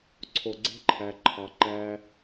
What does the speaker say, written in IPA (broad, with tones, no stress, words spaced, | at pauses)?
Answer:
ǀʰo˨ɡ͡ǀe̤˦ǃʰæ˨ ǃʰɑ˨ ǃæ˧